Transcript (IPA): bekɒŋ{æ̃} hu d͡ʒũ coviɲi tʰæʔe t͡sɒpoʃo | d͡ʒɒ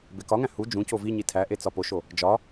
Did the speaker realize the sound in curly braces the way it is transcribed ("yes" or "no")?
yes